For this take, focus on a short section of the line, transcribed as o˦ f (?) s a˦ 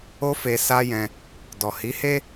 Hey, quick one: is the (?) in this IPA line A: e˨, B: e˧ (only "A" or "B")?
B